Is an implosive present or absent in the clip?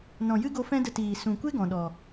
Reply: present